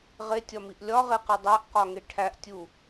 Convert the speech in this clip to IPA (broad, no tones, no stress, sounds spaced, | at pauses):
ʁ e tʲ ɒ m i ʔ lʲ ɒ ʁ e q i dˤ æ ʔ q ɒ ŋ e ʈʰ æ ʔ tʲ u